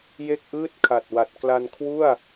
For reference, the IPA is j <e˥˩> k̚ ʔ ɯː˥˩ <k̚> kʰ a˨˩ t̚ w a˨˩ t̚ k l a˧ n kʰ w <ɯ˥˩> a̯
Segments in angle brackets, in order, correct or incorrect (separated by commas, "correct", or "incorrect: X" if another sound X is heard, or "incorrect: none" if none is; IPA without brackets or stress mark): correct, incorrect: t̚, incorrect: u˥˩